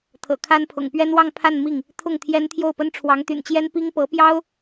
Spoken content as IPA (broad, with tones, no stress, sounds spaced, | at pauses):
t̪ʰ ɤ̰˨˩ kʰ a˥ n pʰ ʊ̰˨˩ ŋ p ɥ ɛ˥ n w ɑ˥˧ ŋ pʰ a˥˧ n m i˥˩ ŋ | t̪ʰ ʊ˥˩ ŋ t̪ʰ j ɛ˥ n t̪ʰ j o˥˩ ʊ̯ p ə˥ n ʈ͡ʂʰ w ɑ˧˥ ŋ t̪ y̰˨˩ n t͡ɕ j ɛ˥ n p i˥ ŋ p ɤ˧˥ p j ɑ˥ ʊ̯